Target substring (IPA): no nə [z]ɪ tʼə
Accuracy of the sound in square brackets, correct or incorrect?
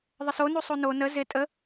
correct